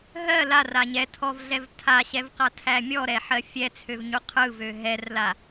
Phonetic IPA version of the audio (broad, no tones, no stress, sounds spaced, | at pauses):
ɦ ɜ l a r a ɲ ɛ tʰ ɔ v ɮ ɛ v tʰ a ɕ ɛ v q a tʰ æ mʲ ɔ ɾ ɛ ħ ɜ fʲ ɛ t͡sʰ ø v ɲ u qʰ ɯ v ø ɦ ɛ r l a